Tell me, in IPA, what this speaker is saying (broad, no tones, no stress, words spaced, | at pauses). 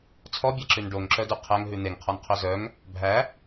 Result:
t͡sʰɔbʲæǁʉn ɖoŋǁœdʉ qʰæŋɦʉ n̪eŋqʰɔnqʰœ zœŋ | bʱæ